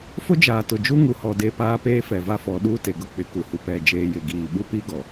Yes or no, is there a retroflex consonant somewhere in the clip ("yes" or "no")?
no